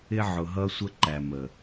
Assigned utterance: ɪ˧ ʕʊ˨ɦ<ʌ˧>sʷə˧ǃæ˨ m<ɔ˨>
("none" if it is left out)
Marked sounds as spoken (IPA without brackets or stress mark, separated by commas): ʌ˧, ə˨